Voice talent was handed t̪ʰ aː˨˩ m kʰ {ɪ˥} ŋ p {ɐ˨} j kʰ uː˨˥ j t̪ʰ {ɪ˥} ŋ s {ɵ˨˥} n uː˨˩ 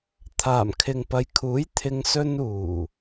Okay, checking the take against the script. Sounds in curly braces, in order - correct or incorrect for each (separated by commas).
incorrect, correct, incorrect, incorrect